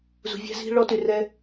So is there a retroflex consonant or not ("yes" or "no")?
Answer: yes